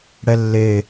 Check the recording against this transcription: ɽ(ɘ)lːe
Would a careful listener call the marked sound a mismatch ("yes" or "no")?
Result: yes